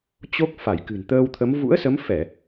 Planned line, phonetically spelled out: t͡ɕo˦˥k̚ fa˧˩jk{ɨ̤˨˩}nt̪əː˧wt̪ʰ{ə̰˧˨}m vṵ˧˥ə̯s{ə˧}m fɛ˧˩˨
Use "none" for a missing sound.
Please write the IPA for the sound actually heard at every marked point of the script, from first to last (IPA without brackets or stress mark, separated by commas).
ɨ̤˨˩, ə˨˦, ə˨˦